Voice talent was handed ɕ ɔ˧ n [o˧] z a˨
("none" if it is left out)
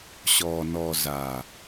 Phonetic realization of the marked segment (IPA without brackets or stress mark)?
ɔ˧